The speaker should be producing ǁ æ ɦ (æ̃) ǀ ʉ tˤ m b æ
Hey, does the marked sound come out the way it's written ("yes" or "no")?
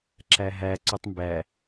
no